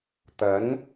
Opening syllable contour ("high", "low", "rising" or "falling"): rising